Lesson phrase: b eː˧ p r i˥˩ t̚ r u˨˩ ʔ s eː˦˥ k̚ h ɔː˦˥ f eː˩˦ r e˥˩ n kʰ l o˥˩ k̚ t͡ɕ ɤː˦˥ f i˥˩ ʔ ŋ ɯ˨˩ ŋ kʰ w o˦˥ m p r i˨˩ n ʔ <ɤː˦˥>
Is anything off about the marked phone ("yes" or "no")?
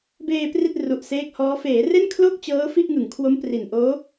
yes